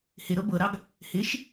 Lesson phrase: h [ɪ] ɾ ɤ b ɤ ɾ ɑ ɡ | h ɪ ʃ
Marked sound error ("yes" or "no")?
no